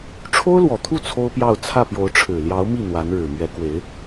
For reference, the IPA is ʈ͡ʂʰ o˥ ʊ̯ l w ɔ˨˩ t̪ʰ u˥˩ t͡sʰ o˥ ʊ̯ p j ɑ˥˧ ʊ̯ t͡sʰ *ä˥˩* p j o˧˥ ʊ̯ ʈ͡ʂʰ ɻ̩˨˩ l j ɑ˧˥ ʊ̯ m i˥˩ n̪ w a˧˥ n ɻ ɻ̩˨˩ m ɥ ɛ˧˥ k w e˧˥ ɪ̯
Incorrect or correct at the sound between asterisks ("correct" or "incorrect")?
correct